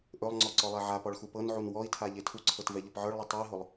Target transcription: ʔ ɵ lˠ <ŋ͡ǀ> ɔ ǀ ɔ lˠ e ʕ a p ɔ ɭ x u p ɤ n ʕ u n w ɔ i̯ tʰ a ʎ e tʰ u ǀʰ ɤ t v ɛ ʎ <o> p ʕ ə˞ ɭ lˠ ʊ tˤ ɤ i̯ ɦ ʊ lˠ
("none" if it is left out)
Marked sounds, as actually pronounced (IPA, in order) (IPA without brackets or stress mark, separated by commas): ŋ͡ǀ, ɤ